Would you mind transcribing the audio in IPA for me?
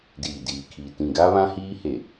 diː˨diː˨kʰiː˨ tĩ˨ɡaː˦βã˦hiː˦ he˨

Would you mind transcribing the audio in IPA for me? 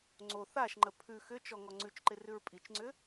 ŋ͡ǀo θaʃŋ͡ǃə pʰʉ xʏt͡ʃɔ ŋɔŋ͡ǀʉt͡ʃǃɪ rʉɹpʼit͡ʃŋ͡ǀʏ

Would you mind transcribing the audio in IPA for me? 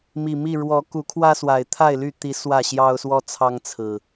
mi˨˩mi˥˨ ɻwɔ˨˦ku˨˦kʰwä˦swa˨˩ɪ̯ t̪ʰa˥˨ɪ̯ly˥˨t̪i˨˦ swä˥˨ɕjɑ˦ʊ̯swɔ˦t͡sʰɑ˦ŋ t͡sʰɹ̩˨˩

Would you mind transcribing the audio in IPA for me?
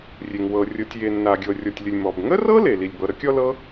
rʲe˩ŋ wɤ˩ rʲɤ˩tʲje˩ nːa˩ɡʲɤ˩ rʲɔ˩tʲlʲə˩lʲ mɔ˩bŋə˥rɤ˥le˩ li˩lʲbɤ˩ɾə˥kʲɔ˥ lɤ˥

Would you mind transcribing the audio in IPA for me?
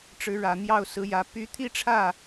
ʈ͡ʂɻ̩˧˥ɻä˨˩n̪jɑ˥˩ʊ̯ sɹ̩˧˥jä˧˥ py˧˥t̪ʰi˥ʈ͡ʂʰä˥˩

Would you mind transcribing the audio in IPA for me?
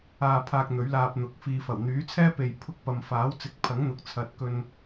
aː˧pʰaː˧k̚ n̪ɵ˨˥ɥlaː˧p̚n̪ʊ˨˥k̚ fiː˨fɐ˨˩wn̪yː˨˥t͡sʰɛː˥ pe˨jpʰʊ˧k̚ pɐ˨mfaː˨˥wt͡sɪ˨˥k̚pʰɐ˨˥ŋ n̪ʊ˨k̚t͡sʰɐ˨t̚ kɵ˨n

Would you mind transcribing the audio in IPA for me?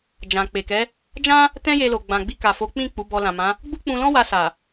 d͡ʒã˨k͡pe˨kɛ˨˦ | d͡ʒã˦ | tɛ̃˦je˧lo˨ ɡ͡bã˨ɡ͡bi˧ka˨fo˨˦ k͡pĩ˦˨ k͡pu˨˦bɔ˧lã˨mã˨˦ | ɡ͡bu˦k͡pũ˧lɔ̃˦ wa˧sa˨

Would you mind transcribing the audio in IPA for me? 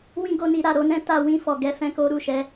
wĩ˦ɡo˧ni˧ ɾa˨ɾo˧nɛ̃˦ ta˧wĩ˧fɔ˨ɡɛ˧ fɛ̃˧ko˧ ɾu˨ʃɛ˨˦

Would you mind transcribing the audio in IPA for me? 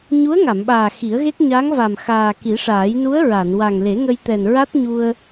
ɲu˧˥ə̯ŋa˨˩˨mɓaː˨˩ xi˨˩˦ə̯ɣe˦˥k̚ ɲa˧˥ŋva˨˩m xaː˨˩ki˨˩˦ʂaː˨˩˦j nu˧˥ə̯ ɹa˨˩˨n wa˨˩ŋle˨˩˦ŋə˧jt̪ɛ˨˩n ɹa˦˥t̚ɲu˧ə̯

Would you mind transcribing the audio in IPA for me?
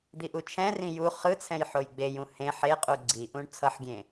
d̪iʔut͡ʃʰɛ̃rĩ ju χɯt͡sʰɛ̃j ħojɡ͡bejũ hẽ ħeqʼu ɡ͡ǀiʔũɳ t͡sʰʌħɡʲẽ

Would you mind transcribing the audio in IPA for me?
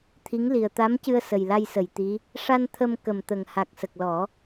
t̪ʰi˧˥ŋli˨˩ə̯ t̪a˧˥mcɨ˧ə̯ sə˨˩jla˧jsə˨˩˨jt̪i˧˥ | ʂa˧n t̪ʰə˧mkə˨˩mt̪ə˨˩ŋ ha˨˩k̚sə˨˩k̚lɔ˨˩˦

